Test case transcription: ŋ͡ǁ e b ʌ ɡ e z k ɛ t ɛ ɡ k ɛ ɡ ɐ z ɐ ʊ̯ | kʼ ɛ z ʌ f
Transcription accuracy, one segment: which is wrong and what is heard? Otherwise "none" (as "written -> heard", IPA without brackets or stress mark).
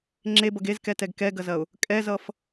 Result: none